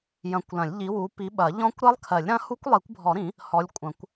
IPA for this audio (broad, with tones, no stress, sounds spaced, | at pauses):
j ɐ̃˨˦ kʷ l ɐ̃˨˩˦ lʲ ʎ i˨˦ w u˨˦ p i˨˦ ɓ ɐ˨˩˦ ʎ ɔ̃˦˥ kʷ ɾ ɜ˦˥ lˠ kʰ ɜ˨˩˦ lʲ ɾ ɐ̃˦˥ h u˦˥ kʷ lˠ i˨˩˦ kʷ bʱ ɔ˨˩˦ ɾ ĩ˨˩˦ | h ɔ˨˦ lʲ kʷʼ ɐ̃˨˩˦ kʷ